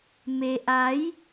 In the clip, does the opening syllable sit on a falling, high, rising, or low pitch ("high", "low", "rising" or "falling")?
low